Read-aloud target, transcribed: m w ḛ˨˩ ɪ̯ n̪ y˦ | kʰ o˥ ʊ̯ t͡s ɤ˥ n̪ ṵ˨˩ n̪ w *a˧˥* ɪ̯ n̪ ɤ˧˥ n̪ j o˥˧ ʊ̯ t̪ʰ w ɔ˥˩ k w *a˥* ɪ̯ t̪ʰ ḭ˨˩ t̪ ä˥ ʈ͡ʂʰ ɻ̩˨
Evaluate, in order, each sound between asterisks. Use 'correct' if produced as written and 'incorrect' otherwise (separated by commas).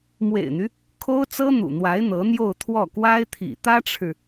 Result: correct, correct